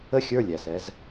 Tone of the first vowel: falling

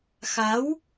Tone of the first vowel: rising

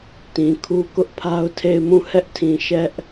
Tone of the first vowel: low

